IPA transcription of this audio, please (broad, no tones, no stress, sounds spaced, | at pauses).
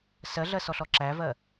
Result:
s ɜ ɮ ɜ s ɔ ɬ ɔ ǁ æ v ɜ